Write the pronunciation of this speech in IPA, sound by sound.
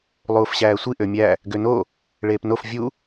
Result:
lˠ uː f ɕ æː sʷ i ʔ ø mʲ æ | ɡ ø n o | ɭ eː p n o f vʲ u

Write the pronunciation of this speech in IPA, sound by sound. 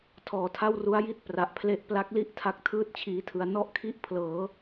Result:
tʰ ɔː˨˩ tʰ a˥˩ w r u˦˥ a̯ j i˥˩ t̚ p r a˨˩ ʔ pʰ l e˦˥ ʔ p l a˦˥ k̚ l i˥˩ ʔ tʰ a˦˥ k̚ tʰ ɯː˥˩ t̚ t͡ɕʰ iː˧ tʰ ɯ˧ a̯ n ɔ˥˩ ʔ kʰ i˥˩ ʔ pʰ l ɤː˩˦

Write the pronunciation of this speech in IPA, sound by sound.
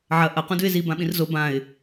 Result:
ʕ ɐ ʔ ɐ q ũ d ʉ ɪ̯ z i b ã ɓ ĩ r z o b ã ɪ̯

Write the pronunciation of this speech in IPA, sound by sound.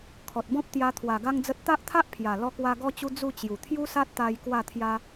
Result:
kʰ ɔ˨ t̚ b ɔ̃˦ p̚ t̪ j a˧ t̪ʰ w a˨˩ ɡ a˦ ŋ d͡z ə˦ t̚ t̪ a˦ ʔ t̪ʰ a˦ ʔ pʰ j a˨˩ l ɔ˦ k w a˦ ɡ ɔ˦ t͡ɕ u˦ d͡z u˥˧ t͡ɕ j u˨˩ t̪ʰ j u˦ s a˦ t̚ t̪ a˧ j k w a˥˧ t̪ʰ j a˦

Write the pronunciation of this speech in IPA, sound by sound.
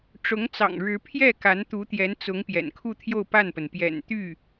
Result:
ʈ͡ʂ ʊ˧˥ ŋ t͡s ɑ̰˨˩ ŋ ɻ ɻ̩˧˥ pʰ j ɛ˥˩ k a˧˥ n t̪ u˧˥ t̪ j ɛ˧˥ n t͡s ʊ˧˥ ŋ p j ɛ̰˨˩ n kʰ u˥˧ t̪ʰ j o˥˧ ʊ̯ p a˥˩ n p ə˩ n p j ɛ̰˨˩ n t̪ y˥˩

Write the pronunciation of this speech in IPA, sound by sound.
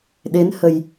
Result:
ɗ e˨˦ n h ə˨˩ j

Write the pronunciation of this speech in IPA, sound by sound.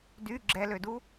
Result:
d y ɡ͡ǁ ɛ l ø d u

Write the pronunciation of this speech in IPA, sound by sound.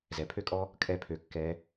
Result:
z ɛ˩ pʰ ø˥ kʼ ɔ˥ | kʼ ɛ˥ pʰ ø˧ kː ɛ˧˥

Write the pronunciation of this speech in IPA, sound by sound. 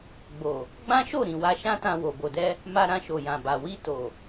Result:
ɡ͡b o˨ | ɡ͡b ã˦ ʃ o˦˨ ɾ ĩ˨ w a˧ ʃ ã˦ t ã˧ w o˨ b o˨ d ɛ˧ | m a˧ ɾ ã˧ ʃ o˨ j ã˨ b a˨ w i˧ t o˨

